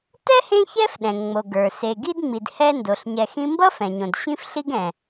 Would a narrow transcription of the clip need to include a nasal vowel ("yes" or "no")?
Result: yes